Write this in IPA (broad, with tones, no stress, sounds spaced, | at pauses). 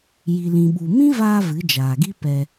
j i˨ l ĩ˨ ɓ u˨ m ĩ˦ v aː˧ v ɨ˨˦ d͡ʒ aː˨ ɡ i˦ p ɛ˧